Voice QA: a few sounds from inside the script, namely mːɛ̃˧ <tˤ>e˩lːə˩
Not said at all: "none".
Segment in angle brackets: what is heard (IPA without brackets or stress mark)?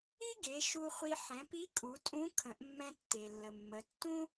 tː